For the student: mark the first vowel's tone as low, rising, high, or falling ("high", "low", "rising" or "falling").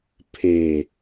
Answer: low